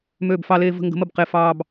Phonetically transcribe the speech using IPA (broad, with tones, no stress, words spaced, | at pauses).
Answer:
møː˥˧bfɑ˥leː˥ və̤˥ ŋɡə̤˧˥mə˥˧b qe˥˧fɑː˥b